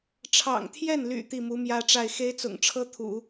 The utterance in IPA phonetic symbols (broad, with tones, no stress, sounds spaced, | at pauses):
ʈ͡ʂʰ ɑ̰˨˩ ŋ t̪ʰ j ɛ˥˩ n l y̰˨˩ t̪ i˥˩ m u˧˥ m j ä˥ ʈ͡ʂ a˥˩ ɪ̯ x e˥ ɪ̯ t͡s ʊ̰˨˩ ŋ ʈ͡ʂʰ ɤ˥ t̪ʰ ṵ˨˩˦